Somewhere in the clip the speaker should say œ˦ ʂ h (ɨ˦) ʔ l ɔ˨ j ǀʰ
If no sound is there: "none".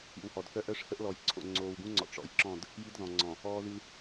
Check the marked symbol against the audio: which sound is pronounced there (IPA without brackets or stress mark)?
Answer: ə˦